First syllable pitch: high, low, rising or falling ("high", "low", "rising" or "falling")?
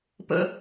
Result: high